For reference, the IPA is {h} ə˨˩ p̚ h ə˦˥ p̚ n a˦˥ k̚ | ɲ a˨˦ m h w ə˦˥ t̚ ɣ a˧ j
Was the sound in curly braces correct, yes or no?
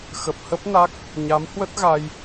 no